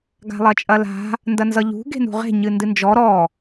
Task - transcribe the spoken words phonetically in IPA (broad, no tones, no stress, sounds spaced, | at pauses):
ɡ a̤ lˠ ɐ t͡ʃʼ ɐ l a̤ | n d ɐ n z ʌ ʎ ṳ ɡ e̤ n ṳ ʁ e̤ ɲ ɨ n d ɨ n d͡ʒ ɔ ɾ ɔ